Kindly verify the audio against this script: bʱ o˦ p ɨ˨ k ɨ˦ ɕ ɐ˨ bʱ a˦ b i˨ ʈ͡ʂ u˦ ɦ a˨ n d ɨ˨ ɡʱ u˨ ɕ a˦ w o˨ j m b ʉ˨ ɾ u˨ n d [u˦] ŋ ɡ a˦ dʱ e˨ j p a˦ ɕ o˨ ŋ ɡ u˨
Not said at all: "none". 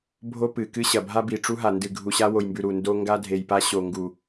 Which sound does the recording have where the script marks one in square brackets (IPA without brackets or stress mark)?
o˦